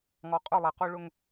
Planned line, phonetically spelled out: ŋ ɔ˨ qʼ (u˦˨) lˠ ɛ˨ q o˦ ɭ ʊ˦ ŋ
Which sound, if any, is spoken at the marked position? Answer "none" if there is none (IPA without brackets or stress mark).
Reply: ʊ˦˨